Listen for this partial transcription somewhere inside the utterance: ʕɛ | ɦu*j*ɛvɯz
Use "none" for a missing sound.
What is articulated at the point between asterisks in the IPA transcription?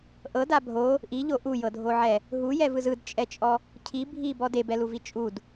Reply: j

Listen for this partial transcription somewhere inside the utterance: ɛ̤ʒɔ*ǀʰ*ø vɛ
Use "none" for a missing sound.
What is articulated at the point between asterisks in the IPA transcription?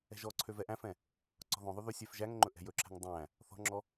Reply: ǀʰ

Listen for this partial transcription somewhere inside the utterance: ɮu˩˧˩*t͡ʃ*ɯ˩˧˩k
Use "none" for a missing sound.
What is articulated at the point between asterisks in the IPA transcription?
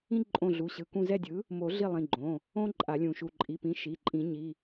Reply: ɕ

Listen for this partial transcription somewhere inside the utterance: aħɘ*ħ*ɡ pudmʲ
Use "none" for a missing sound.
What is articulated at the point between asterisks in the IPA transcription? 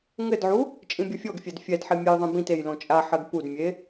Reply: none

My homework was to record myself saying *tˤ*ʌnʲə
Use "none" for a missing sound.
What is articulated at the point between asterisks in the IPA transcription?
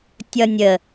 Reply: tʲ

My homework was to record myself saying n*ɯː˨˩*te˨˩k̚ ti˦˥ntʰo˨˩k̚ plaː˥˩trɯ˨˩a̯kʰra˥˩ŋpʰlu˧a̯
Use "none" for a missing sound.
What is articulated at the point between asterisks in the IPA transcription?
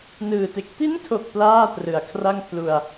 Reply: ɯː˨˩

